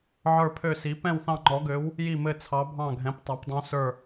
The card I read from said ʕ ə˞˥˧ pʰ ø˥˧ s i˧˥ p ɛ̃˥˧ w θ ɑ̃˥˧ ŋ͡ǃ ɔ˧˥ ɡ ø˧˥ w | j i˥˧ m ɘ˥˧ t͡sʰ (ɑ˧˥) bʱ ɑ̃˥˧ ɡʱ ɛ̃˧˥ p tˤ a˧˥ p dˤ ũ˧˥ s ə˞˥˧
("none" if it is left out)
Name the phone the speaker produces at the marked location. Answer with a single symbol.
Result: ɑ˧˥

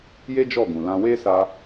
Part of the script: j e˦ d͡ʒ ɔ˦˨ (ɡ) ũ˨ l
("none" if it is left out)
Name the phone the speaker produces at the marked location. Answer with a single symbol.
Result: ɡ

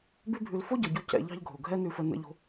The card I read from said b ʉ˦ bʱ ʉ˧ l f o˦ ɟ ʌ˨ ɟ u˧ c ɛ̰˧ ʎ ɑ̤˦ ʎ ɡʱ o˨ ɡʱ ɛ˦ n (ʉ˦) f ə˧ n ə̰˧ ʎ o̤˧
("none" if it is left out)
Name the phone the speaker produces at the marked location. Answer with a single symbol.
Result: ʉ˧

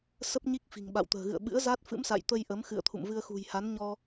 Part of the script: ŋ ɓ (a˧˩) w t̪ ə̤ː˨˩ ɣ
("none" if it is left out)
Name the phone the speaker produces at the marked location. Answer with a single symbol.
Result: a̰˧˨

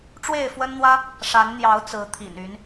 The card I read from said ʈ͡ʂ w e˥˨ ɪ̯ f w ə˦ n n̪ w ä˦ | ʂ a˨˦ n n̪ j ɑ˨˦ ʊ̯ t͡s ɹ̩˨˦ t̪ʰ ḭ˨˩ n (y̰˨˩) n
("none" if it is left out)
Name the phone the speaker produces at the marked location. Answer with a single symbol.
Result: y˨˦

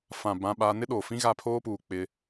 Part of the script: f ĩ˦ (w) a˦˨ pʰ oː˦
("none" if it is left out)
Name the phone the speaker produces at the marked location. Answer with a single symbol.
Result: ɣ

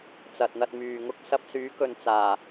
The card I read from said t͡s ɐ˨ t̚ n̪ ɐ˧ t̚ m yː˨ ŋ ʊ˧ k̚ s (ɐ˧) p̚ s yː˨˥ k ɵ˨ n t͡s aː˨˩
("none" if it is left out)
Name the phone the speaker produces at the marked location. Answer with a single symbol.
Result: ɐ˧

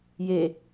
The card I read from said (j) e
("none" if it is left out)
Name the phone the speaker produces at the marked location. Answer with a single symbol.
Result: j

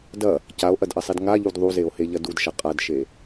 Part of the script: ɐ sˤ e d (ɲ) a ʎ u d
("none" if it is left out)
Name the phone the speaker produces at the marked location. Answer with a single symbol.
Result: ŋ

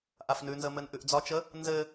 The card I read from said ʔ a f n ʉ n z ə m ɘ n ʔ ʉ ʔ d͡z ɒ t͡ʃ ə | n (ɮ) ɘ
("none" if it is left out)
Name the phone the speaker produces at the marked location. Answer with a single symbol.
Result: z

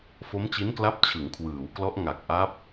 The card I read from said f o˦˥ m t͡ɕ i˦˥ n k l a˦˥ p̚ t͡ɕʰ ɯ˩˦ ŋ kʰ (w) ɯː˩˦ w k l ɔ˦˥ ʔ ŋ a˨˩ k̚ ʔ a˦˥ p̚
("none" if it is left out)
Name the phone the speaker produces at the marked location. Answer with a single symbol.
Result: w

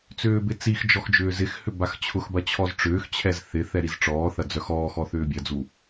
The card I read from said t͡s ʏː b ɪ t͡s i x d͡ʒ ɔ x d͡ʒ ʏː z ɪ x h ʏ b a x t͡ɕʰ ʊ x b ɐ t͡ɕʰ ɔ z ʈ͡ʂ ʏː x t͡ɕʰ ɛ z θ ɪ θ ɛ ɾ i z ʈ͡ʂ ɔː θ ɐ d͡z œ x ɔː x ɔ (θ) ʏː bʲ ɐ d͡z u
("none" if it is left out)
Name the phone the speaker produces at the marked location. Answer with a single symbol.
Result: θ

